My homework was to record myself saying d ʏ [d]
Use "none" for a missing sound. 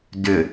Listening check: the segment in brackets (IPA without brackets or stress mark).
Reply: none